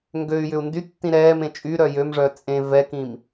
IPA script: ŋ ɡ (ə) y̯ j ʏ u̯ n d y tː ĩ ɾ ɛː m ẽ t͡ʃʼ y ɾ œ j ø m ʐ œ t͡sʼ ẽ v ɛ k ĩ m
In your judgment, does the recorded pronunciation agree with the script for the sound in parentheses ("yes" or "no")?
no